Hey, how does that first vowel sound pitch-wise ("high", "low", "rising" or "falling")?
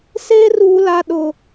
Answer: high